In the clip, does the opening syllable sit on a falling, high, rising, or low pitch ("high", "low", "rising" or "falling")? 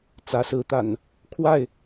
rising